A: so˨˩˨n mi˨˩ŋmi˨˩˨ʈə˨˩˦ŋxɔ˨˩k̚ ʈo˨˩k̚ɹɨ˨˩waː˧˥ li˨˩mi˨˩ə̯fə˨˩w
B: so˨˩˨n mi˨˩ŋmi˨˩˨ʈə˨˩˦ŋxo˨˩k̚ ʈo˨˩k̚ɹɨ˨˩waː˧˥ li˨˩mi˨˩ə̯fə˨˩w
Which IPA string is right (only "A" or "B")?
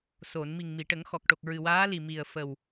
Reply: A